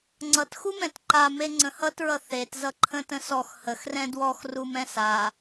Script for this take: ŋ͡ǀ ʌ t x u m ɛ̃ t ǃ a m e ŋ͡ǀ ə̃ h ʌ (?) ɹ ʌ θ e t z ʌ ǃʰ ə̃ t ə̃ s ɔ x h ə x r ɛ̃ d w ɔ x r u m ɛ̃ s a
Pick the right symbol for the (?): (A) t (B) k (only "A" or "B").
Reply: A